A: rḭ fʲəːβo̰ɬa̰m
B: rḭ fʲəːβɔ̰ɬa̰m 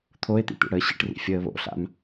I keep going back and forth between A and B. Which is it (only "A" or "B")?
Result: A